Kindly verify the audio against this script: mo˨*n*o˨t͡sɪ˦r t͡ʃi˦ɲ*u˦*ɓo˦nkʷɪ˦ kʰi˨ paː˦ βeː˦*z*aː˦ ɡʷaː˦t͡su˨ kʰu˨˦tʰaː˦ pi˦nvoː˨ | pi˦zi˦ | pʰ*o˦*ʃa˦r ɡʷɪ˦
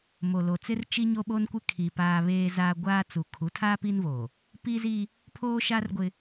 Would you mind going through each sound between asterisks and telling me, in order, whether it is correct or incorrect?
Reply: incorrect: l, incorrect: o˦, correct, incorrect: oː˦

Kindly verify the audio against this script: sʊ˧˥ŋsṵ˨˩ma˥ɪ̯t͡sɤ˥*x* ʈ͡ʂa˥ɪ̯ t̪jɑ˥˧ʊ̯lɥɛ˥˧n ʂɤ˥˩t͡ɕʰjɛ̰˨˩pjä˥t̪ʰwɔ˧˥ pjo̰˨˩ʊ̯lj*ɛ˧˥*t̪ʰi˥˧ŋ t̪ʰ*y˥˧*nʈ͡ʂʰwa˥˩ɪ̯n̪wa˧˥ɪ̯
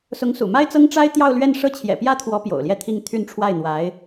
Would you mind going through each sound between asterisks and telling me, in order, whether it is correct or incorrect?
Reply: incorrect: ŋ, incorrect: ɛ˥˧, correct

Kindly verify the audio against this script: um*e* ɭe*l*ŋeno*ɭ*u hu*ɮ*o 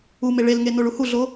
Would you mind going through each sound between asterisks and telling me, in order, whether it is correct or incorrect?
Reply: correct, correct, correct, correct

